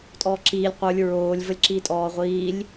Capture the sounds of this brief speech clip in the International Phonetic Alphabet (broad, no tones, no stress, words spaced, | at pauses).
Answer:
tʼɔːǁiːlʲ qʷə˞lʲ ɹoːlʲ vəlʲǁitʼɔː ʁʷiːlʲ